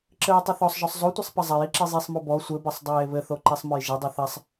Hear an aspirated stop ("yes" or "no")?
no